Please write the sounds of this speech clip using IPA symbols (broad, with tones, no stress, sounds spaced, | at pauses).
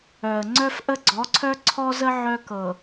œ˨ ə̯ ŋ͡ǀ œ˦ f ʔ ə˦ ɡ͡ǀ ɔ˨˦ ǀʰ œ˦ ǀʰ ɔ˦ z ə˦ ʕ œ˦ k ɤ˨